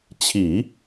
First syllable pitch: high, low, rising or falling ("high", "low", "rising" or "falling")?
low